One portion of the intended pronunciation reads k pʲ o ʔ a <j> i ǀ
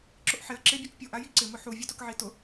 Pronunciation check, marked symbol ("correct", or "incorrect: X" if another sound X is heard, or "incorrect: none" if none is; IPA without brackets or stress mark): correct